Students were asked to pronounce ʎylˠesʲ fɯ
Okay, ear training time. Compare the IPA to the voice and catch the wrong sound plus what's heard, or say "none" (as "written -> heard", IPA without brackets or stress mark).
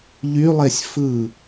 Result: none